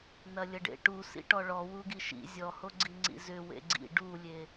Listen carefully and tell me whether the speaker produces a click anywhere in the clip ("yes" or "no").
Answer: yes